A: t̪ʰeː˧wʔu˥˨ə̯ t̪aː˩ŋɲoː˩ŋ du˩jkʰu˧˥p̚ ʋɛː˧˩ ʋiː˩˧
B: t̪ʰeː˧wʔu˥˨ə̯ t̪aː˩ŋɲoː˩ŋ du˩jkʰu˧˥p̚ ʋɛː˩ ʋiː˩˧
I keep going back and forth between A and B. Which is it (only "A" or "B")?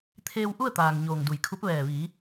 A